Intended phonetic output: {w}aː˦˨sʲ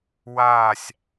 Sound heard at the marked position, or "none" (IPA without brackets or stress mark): w